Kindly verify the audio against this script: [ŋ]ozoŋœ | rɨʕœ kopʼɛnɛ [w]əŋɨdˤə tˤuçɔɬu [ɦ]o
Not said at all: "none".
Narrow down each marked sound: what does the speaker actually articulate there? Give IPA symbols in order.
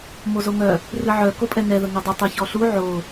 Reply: m, ð, ʕ

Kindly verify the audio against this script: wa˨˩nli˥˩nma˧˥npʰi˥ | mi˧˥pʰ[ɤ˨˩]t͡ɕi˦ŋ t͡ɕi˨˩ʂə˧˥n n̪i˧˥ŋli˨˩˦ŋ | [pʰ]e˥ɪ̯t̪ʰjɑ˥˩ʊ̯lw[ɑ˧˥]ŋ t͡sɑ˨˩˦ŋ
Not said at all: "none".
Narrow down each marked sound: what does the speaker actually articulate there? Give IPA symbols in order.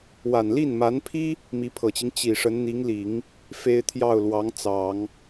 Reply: ɤ˨˩, f, ɑ˧˥

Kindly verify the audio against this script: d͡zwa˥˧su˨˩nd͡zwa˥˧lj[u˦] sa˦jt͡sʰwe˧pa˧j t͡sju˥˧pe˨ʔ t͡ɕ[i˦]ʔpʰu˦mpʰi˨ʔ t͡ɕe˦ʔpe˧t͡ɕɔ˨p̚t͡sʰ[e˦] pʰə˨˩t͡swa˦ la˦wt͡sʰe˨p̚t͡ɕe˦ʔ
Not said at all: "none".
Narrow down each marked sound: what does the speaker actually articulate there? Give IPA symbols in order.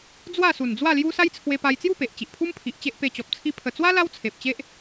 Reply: u˦, i˨, i˦

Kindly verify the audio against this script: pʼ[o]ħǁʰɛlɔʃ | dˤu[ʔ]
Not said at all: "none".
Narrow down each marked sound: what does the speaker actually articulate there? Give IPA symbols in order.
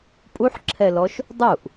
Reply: u, ʔ

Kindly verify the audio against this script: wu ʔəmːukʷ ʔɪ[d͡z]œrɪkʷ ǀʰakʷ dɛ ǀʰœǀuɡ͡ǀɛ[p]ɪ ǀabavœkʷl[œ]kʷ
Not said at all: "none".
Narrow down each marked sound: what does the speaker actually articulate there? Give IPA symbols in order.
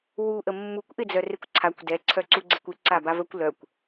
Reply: d͡z, kʷ, œ

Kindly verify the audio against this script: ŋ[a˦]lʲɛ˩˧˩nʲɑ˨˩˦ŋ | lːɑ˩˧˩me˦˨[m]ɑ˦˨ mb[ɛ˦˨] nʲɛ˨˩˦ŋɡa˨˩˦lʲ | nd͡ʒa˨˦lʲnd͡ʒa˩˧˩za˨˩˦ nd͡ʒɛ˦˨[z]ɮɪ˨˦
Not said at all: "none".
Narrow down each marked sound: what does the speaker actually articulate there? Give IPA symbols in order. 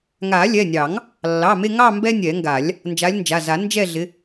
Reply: a˨˩˦, ŋ, ɛ˦, none

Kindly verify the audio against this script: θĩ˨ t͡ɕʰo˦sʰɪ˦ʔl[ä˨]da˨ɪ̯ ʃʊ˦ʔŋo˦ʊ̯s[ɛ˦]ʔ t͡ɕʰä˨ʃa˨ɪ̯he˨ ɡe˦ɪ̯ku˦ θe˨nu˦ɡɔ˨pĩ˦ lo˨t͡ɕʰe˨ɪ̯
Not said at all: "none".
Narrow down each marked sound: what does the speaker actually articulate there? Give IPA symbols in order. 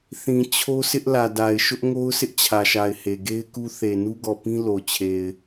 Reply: ä˨, ɪ˦

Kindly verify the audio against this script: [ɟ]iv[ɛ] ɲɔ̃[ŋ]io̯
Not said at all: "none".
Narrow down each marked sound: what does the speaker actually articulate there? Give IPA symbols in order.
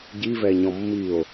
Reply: ɟ, ɛ, mː

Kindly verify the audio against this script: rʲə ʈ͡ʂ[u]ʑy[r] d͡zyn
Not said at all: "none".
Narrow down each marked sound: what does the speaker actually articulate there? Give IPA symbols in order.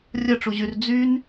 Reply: u, r

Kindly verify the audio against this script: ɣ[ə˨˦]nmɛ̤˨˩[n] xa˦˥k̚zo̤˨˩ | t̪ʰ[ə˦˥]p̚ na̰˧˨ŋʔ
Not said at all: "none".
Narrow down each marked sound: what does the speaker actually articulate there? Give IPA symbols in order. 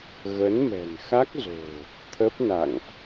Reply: ə˨˦, n, ə˦˥

